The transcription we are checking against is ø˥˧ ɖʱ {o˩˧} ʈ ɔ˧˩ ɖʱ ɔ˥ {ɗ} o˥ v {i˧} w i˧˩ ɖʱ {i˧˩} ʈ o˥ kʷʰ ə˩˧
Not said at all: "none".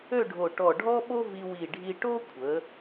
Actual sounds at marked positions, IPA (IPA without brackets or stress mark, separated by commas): o˧˩, ɓ, i˧, i˧